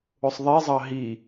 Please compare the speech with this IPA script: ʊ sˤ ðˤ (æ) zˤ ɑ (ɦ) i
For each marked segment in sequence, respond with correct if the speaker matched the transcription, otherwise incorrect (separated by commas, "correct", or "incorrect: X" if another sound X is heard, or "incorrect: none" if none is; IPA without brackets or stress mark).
incorrect: ɛ, correct